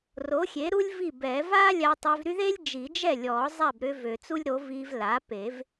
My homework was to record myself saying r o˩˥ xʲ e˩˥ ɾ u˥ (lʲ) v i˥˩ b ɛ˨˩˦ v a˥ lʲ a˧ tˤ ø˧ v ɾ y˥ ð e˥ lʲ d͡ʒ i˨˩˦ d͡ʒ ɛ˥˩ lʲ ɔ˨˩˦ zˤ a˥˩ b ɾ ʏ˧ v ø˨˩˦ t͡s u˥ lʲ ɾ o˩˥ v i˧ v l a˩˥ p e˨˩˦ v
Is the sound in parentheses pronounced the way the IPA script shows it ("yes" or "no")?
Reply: yes